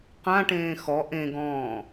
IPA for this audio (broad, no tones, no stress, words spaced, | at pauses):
qãʈẽː xɔ ʔẽɡɔ̃ː